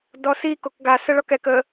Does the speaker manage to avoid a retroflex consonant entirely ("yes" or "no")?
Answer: no